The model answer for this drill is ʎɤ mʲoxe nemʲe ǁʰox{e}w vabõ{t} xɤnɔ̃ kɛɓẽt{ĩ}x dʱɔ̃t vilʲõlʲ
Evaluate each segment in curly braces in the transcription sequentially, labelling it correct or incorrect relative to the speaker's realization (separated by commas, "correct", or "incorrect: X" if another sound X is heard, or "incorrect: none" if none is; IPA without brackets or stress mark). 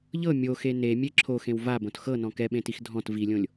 incorrect: ẽ, correct, incorrect: i